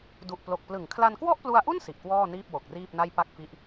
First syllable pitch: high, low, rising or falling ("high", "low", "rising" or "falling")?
low